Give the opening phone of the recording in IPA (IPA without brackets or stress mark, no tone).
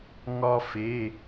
ŋ